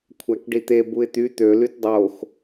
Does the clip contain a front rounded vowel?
yes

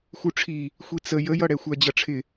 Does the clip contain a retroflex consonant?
yes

